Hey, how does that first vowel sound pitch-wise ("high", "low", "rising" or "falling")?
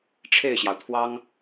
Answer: falling